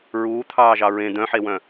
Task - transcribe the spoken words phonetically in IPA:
ɹ uː t̪ʰ ɑː ʒ ɑ ɹ ẽ d̪ œ̃ ħ e w œ̃

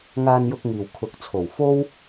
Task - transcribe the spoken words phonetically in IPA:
ŋ aː˧ n j ʊ˧ k̚ ŋ iː˨˩ w kʰ ʊ˨ k̚ t͡sʰ o˨˩ w f o˥ w

